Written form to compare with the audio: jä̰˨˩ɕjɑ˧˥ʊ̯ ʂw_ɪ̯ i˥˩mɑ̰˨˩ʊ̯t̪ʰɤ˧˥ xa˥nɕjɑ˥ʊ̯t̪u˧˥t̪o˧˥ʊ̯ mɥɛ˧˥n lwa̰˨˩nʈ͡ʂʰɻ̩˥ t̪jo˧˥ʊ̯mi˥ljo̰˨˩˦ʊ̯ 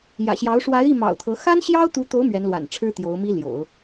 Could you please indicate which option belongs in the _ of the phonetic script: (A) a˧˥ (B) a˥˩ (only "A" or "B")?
A